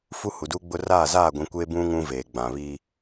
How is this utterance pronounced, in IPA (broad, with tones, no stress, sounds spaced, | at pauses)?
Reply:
f u˦ h u˨ d uː˦ ɡ͡b ʊ˦ r aː˦˨ z aː˦˨ ɡʷ ĩ˨ kʷ e˦ b ũ˦ ŋ ũ˦ v eː˨ ɡ͡b ã˨ β iː˦